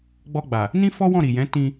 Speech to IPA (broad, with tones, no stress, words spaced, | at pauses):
ɡ͡bɔ˧ɡ͡ba˨ | nĩ˦fɔ˦wɔ̃˦˨ ɾi˨jɛ̃˨˦ tĩ˧